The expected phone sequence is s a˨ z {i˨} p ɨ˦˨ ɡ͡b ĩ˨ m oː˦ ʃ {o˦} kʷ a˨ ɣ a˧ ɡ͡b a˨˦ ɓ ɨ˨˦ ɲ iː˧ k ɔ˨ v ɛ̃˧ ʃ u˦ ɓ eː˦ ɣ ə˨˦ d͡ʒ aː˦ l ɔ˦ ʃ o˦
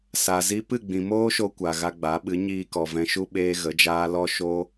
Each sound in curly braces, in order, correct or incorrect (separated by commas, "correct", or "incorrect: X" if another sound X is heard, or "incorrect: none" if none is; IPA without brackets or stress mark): incorrect: i˧, incorrect: o˧